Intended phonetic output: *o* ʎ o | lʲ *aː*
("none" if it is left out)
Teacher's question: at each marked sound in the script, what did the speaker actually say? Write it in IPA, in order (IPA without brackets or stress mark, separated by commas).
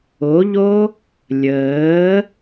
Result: o, əː